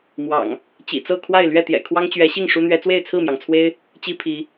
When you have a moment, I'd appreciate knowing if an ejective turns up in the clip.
no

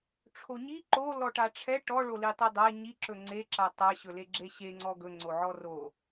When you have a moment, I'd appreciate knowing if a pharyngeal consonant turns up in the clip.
yes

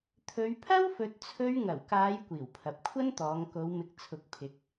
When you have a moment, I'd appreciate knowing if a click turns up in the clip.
no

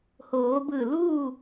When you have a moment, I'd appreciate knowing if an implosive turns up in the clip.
no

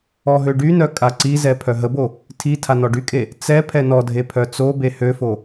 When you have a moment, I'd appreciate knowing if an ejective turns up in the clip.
yes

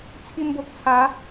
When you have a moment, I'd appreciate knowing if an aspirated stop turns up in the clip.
yes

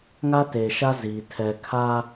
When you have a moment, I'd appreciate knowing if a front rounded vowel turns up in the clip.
no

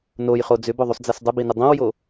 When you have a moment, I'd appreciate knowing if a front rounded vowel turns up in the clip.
yes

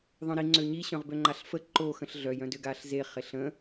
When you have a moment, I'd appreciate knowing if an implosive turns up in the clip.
no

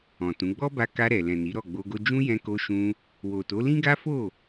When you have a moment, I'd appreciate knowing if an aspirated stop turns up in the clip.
no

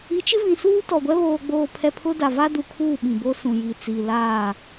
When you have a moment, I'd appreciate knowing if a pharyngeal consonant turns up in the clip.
no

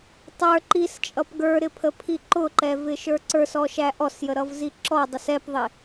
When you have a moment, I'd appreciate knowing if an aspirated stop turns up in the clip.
yes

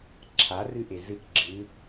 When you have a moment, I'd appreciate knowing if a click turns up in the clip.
yes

